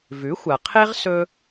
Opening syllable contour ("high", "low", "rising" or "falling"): rising